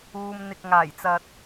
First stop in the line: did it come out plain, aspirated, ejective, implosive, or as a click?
plain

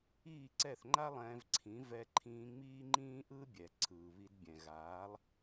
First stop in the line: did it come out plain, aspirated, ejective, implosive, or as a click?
click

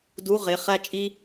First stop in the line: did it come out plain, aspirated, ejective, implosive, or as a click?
plain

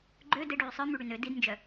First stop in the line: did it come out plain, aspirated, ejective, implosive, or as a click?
click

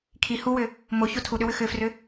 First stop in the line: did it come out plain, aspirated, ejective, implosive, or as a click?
aspirated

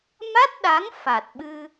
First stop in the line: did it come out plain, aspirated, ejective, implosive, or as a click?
plain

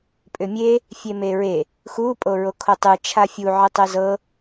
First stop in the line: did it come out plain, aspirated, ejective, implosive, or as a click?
ejective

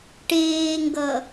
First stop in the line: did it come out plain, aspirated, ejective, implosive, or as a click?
plain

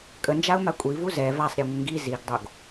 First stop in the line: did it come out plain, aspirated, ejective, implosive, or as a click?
ejective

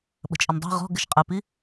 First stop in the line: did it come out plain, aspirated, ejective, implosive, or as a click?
implosive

